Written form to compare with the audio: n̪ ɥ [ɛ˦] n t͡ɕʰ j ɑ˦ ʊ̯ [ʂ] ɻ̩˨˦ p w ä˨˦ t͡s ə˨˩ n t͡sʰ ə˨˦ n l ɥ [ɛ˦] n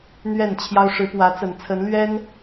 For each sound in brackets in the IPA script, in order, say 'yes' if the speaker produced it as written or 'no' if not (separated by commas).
no, yes, yes